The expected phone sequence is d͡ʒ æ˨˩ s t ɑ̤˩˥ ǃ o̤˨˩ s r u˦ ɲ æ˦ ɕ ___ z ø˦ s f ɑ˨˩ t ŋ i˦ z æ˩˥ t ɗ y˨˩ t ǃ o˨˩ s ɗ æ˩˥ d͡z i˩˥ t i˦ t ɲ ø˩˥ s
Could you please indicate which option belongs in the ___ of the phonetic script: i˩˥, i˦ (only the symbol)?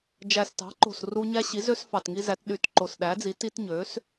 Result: i˩˥